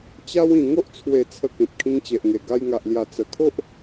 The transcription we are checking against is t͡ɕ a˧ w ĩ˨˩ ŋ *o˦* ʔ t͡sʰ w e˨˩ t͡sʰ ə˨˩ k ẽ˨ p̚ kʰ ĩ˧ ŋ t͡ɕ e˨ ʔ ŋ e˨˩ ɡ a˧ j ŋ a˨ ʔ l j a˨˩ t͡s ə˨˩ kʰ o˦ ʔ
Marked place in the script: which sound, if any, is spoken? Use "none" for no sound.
o˦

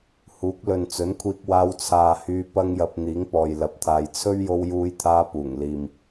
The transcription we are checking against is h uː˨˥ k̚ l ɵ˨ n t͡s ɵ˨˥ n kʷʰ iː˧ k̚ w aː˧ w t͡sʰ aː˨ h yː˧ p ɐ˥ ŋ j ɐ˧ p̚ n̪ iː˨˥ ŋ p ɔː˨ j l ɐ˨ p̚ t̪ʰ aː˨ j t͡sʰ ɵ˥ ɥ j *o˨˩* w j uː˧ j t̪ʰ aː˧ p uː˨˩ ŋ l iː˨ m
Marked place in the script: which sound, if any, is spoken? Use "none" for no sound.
o˧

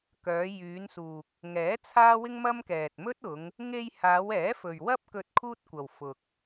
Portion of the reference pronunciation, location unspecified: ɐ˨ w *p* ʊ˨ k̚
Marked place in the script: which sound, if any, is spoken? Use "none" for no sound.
f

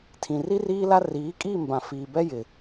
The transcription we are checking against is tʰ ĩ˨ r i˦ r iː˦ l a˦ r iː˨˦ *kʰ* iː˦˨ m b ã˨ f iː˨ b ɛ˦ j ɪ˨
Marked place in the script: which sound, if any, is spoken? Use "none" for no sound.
kʼ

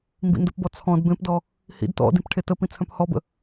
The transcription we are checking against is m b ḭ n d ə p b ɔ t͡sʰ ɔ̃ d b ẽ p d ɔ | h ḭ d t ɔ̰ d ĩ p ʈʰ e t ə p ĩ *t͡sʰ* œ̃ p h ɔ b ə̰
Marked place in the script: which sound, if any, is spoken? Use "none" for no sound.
t͡sʰ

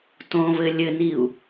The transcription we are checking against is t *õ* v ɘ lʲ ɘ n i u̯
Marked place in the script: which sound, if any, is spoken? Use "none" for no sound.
õ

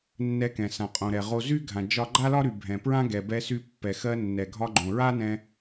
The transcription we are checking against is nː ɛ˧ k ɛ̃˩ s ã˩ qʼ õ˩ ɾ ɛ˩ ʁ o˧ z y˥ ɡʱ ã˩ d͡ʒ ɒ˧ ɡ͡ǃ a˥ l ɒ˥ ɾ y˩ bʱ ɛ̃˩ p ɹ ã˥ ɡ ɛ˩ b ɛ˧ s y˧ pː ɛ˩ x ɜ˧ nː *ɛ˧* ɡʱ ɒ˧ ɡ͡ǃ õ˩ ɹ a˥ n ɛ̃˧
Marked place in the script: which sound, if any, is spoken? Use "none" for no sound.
ɛ˩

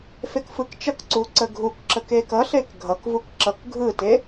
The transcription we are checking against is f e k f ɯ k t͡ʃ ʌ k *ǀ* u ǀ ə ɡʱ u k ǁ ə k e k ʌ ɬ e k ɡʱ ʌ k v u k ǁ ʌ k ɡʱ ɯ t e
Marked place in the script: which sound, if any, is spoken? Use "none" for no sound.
ǀ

